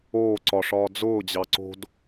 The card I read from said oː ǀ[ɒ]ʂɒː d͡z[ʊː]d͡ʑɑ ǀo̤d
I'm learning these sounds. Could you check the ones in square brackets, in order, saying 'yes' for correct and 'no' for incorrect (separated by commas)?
yes, yes